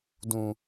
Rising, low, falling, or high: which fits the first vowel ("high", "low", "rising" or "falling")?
low